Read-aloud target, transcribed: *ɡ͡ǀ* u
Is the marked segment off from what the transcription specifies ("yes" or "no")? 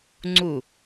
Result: yes